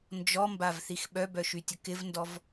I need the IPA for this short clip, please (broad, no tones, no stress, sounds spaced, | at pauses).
n d͡ʒ ɔ m b a v θ i x ɓ œ b œ ʃ y tʲ ə k ɪ v n d ɔ v